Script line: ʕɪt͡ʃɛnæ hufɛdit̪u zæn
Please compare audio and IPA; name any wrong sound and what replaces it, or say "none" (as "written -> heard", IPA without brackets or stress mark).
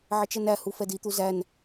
none